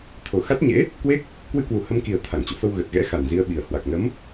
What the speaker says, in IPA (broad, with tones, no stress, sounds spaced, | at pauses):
t̪ʰ o˨˩ x a˦˥ t̚ ɲ ḛ˧˥ | k w e˦˥ k̚ | k w ɨ˧ k w u˨˩ h ə˧ m k i˨˩ ə̯ t̪ʰ a˧˩ ŋ t͡ɕ o̰˧˨ f ə˧ w ɣ ə˨˩ t̚ ɣ ɛ̰˧˥ x a˨˩ n z i˧ ə̯ ɓ i˨˩ ə̯ h w a˨˩ k̚ n ə˨˦ m